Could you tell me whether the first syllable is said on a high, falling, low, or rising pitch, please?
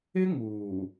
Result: high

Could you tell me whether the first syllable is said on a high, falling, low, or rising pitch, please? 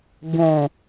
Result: low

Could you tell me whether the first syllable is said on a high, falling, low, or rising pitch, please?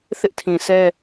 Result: high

